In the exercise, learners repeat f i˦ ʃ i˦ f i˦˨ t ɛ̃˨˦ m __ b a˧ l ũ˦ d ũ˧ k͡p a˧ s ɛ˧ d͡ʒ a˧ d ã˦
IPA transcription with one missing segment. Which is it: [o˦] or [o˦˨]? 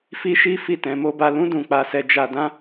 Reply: o˦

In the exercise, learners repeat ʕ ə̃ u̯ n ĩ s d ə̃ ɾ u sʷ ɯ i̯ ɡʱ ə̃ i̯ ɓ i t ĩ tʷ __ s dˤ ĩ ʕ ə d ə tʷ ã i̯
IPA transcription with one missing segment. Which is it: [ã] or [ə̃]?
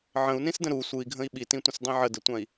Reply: ə̃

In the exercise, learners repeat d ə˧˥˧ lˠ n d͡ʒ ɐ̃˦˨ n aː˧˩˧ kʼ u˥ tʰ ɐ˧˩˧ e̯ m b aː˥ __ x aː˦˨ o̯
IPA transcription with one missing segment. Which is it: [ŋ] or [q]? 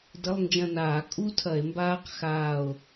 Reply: q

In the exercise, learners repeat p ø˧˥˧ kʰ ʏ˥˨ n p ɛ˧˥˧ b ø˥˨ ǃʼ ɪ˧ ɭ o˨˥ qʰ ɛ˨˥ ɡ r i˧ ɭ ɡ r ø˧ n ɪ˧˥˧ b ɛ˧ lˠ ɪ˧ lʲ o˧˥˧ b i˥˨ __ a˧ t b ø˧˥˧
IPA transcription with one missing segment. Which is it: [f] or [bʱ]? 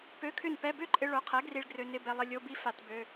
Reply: f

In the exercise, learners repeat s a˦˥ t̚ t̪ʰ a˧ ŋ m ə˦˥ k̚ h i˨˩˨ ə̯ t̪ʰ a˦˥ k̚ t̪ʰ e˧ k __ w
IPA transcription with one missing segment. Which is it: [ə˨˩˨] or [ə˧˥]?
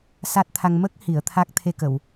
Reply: ə˨˩˨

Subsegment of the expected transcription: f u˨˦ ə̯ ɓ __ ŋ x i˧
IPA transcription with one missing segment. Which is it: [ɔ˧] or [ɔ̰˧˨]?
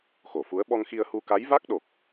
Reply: ɔ˧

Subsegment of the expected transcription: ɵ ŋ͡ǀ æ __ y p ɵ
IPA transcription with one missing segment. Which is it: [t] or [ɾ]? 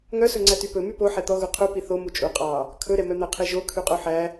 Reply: t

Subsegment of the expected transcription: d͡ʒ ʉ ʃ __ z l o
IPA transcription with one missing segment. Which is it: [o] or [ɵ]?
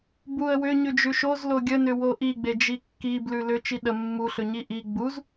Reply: o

